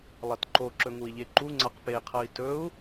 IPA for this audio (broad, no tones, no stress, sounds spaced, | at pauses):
lˠ ɐ t ǃ o ǁ ɵ ŋ u i̯ ʎ e ǃ u ŋ͡ǀ a q p e qʰ ɐ i̯ t ɵ u̯